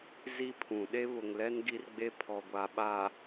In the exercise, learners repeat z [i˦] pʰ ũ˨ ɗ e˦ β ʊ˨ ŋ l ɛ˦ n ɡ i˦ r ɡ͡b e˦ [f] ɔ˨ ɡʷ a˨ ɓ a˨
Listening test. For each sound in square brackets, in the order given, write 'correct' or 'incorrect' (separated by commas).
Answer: correct, incorrect